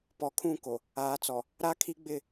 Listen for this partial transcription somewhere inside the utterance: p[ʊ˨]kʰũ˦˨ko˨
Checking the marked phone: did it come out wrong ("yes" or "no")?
yes